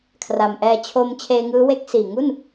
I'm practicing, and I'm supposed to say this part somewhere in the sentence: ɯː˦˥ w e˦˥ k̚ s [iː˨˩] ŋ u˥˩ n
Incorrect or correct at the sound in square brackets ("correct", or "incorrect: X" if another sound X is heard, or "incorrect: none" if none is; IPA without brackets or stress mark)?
correct